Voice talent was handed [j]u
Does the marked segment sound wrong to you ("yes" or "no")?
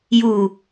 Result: no